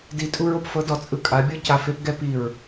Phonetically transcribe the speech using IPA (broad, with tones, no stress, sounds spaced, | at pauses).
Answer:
d i˨˦ tʼ u˧ ɹ o˨ p f ɤ˨˦ d ɔ˨ t͡sʼ ɯ˧ kʼ a˨˦ bʲ ɤ˦ c a˨ f e˧ p ɡ ɛ˦ p i˦˨ ɹ